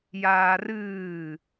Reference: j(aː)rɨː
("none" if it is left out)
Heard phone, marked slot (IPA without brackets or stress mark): aː